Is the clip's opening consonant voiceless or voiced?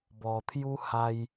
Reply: voiced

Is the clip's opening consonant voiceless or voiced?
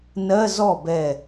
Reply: voiced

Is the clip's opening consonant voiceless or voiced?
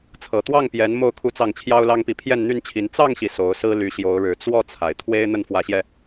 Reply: voiceless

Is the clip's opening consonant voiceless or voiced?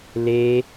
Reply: voiced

